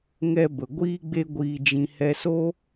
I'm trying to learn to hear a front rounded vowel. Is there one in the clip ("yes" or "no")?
no